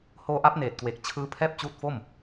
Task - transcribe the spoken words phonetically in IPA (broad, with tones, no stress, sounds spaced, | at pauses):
h oː˧ ʔ a˦˥ p̚ n eː˨˩ t̚ k w e˨˩ k̚ t͡ɕʰ ɯː˦˥ pʰ ɛː˥˩ p̚ t͡ɕ uː˦˥ t̚ f o˥˩ m